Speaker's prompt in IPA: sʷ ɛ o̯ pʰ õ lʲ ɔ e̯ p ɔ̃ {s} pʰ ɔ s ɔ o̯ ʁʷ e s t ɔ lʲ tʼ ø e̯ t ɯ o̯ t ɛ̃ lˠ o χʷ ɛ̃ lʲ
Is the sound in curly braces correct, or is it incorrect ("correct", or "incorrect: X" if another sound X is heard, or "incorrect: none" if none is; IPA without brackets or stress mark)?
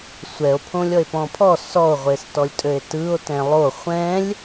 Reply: incorrect: none